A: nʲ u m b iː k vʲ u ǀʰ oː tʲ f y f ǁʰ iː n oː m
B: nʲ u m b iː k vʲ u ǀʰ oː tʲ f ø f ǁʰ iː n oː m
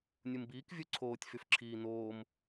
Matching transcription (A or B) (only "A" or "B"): A